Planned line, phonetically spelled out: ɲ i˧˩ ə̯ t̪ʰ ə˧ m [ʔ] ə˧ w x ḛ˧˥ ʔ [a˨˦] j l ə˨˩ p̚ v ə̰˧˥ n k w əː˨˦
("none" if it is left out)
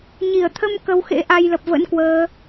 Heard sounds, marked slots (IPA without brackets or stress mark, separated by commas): k, a˧